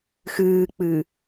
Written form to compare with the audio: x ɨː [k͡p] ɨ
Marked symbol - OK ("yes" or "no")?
yes